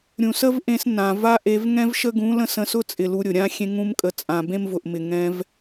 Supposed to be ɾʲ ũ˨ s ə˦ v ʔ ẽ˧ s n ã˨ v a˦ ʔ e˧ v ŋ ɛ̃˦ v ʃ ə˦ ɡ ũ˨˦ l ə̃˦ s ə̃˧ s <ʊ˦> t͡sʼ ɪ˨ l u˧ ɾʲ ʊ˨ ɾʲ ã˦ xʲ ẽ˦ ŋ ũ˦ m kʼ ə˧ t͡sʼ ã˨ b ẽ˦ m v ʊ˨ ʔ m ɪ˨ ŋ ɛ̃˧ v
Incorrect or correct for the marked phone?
correct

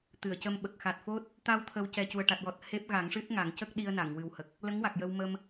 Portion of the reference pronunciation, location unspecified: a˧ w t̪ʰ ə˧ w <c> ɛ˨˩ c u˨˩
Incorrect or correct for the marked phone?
correct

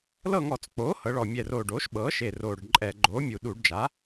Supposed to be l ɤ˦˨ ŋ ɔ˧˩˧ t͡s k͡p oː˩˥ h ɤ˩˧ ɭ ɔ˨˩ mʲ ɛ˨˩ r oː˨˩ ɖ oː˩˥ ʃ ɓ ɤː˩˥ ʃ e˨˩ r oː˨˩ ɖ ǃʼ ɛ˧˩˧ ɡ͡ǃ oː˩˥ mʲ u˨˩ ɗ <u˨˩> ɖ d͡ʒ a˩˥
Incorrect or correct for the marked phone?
incorrect: u˧˩˧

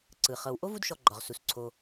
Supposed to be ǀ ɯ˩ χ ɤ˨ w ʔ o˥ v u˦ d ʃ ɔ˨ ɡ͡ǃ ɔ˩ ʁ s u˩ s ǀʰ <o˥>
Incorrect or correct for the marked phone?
incorrect: o˨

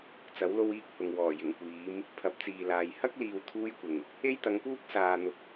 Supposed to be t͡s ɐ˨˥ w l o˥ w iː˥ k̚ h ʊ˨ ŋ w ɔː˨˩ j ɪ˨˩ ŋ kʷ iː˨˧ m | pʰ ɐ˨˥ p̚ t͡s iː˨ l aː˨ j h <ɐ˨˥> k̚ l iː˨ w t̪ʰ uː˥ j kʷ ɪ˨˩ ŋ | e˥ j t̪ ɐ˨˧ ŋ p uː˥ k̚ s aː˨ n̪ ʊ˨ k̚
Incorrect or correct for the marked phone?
incorrect: ɐ˥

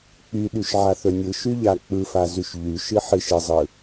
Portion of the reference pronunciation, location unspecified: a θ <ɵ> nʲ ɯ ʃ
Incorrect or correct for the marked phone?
correct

